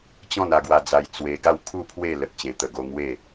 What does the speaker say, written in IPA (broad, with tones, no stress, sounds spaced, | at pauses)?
t͡ɕ ɔ̃˥˧ n a˧ ɡ w a˧ d͡z a˧ j t͡s w e˧ ɡ a˥˧ w kʰ u˥˧ pʰ w e˥˧ l ə˨ t̚ t͡ɕ ẽ˨˩ t̪ ə˨˩ ɡ o˧ ŋ w e˥˧